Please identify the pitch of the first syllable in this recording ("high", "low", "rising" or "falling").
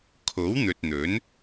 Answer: rising